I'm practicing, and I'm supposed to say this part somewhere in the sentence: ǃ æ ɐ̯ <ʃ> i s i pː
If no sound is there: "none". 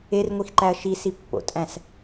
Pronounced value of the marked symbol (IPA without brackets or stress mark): ʃ